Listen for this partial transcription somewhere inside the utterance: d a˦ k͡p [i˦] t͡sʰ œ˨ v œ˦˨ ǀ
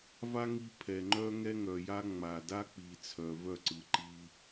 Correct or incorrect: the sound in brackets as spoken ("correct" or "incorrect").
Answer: incorrect